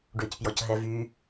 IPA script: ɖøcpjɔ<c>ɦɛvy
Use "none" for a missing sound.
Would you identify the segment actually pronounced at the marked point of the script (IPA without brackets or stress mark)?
c